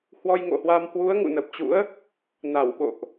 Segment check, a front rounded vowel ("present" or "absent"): absent